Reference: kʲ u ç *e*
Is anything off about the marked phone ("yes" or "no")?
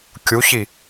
yes